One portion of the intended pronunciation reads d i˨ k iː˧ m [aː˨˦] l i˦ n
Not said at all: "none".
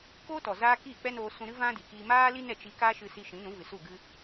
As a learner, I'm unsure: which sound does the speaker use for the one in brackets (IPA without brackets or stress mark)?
aː˦